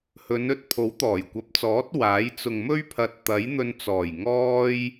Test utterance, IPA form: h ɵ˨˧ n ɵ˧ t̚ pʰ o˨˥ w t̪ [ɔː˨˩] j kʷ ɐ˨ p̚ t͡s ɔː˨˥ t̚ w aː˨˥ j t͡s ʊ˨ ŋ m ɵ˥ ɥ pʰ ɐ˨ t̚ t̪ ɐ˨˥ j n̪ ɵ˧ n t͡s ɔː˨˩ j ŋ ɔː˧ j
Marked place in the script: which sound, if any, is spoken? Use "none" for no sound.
ɔː˨˩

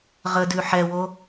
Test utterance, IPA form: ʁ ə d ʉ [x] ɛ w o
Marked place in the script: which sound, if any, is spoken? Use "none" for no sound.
ħ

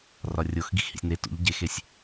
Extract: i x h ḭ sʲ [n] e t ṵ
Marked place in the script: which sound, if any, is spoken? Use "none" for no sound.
n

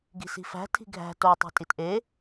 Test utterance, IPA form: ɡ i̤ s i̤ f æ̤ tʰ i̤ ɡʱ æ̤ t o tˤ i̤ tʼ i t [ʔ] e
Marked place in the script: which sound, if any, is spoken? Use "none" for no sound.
ʔ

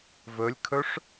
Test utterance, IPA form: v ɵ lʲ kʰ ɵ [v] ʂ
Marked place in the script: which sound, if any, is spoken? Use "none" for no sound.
none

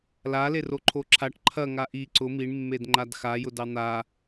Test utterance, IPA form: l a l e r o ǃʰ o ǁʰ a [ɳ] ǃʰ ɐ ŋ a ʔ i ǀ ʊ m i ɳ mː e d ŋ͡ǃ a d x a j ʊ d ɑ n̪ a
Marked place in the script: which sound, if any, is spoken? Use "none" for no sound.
ʈ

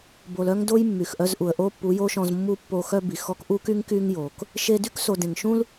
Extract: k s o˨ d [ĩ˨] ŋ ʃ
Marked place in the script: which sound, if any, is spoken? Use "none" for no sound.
ẽ˨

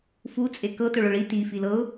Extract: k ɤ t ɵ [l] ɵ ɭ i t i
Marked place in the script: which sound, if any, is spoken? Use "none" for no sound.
ɭ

